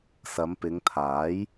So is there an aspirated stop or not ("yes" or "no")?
yes